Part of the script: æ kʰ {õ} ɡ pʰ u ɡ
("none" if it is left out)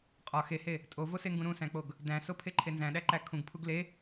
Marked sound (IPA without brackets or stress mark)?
ũ